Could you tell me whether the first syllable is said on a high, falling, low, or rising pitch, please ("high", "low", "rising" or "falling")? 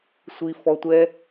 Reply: low